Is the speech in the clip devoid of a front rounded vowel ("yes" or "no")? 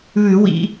yes